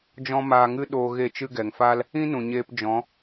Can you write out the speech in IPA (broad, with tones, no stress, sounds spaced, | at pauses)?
d͡ʒ ɔ̃˦ m aː˧ ŋ ɨ˦ ɗ oː˧ ɣ e˦˨ t͡ʃ ɨ˦ ɡ ɛ˨ ŋ f aː˦ l | ĩ˦ n ũ˨ ɲ eː˧ p d͡ʒ ɔ̃˨˦